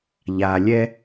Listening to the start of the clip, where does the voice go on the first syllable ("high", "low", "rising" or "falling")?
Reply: low